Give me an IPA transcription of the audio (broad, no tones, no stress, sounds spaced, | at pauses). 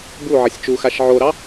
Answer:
b u ʕ ʌ sʲ t͡ʃ u x a ʃ ʕ o ɾ ɑ